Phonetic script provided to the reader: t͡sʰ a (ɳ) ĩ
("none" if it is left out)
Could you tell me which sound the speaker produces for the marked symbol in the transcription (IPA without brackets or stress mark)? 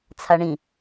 ɳ